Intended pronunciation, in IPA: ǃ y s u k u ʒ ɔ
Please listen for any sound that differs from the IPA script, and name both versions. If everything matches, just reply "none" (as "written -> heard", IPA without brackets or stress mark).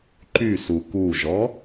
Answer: none